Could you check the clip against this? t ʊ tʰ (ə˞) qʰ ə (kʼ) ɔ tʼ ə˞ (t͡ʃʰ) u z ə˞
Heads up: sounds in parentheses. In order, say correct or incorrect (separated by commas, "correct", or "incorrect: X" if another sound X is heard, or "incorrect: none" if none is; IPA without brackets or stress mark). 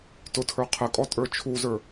correct, correct, correct